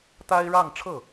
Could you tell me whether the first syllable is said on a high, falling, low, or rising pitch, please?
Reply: high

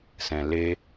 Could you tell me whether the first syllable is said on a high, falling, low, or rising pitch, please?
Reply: low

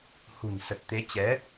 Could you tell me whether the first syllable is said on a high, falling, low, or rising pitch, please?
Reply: low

